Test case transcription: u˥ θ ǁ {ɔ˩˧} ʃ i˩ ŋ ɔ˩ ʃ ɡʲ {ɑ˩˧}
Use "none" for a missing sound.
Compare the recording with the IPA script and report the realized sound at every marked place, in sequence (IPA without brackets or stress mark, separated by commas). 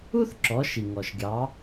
ɔ˩˧, ɑ˩˧